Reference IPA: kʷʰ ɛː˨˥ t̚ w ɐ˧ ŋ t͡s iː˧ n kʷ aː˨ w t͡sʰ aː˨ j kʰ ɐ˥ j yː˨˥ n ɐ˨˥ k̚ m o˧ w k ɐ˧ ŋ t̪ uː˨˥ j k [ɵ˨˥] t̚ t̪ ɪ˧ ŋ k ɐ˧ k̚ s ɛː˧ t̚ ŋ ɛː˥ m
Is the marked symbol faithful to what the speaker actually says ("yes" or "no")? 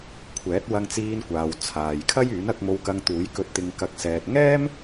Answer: no